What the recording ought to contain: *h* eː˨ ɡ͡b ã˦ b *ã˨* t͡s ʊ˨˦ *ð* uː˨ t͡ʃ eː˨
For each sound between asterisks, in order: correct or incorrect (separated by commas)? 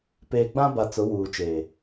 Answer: incorrect, incorrect, incorrect